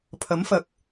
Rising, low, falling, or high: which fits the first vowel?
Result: rising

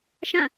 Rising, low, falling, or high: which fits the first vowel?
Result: falling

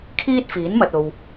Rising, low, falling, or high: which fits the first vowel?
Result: high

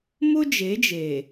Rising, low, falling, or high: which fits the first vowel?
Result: high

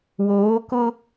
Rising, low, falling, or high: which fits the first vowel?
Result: rising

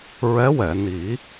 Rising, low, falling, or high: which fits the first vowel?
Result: rising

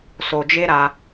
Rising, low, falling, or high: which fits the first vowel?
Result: low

